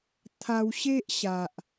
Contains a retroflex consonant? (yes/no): no